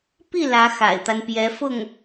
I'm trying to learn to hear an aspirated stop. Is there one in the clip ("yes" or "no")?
no